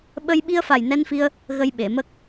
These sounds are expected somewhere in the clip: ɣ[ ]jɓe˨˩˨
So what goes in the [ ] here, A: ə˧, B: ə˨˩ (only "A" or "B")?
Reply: A